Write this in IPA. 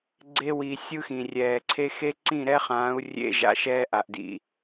ɡ͡ǀ e˧ w iː˨ sʲ ɯ˦ x ĩ˨ rʲ ɛː˨ ǀʰ e˦ x e˦ ǀ ĩ˦˨ ɾ ɛ˦ χ ãː˨˦ u̯ rʲ ḛ˧ ʒ a̰˨ ʃ ɛː˧ ʔ a˨ ʔ d ḭ˨

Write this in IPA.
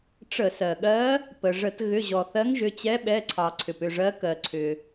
ʈ͡ʂ ə˧˩˧ s ɜ˩ ɠ ɜ˧˥ | p ə˩ ʐ ə˧˩˧ t ɣ ʏ˩˧˩ ʑ ɔ˩ θ ɜ˧˥ ŋ ʒ ʏ˩˧˩ t͡ɕ ɛ˧˥ ɓ ɛ˩˧˩ ǀʰ ɑ˩ ǀʰ ʏ˩ p ʏ˥˨ ʐ ɜ˧˥ k ɜ˩ ǀʰ ʏ˩

